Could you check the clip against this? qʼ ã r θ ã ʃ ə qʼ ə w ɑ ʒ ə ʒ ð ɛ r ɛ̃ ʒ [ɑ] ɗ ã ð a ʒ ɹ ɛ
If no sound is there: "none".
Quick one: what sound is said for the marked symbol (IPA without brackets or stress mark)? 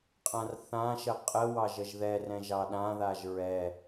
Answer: ɑ